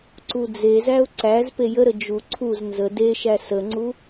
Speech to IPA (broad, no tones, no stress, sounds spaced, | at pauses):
ǀ u d͡z e z æ ʊ̯ ǀ æ z p e j ə ɾ ə d͡ʒ u ǀʰ u z n z ə d e ʃ æ s ə ŋ͡ǀ u